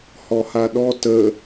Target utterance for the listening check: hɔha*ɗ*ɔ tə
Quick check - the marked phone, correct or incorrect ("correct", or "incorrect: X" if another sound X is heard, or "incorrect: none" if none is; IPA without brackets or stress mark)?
correct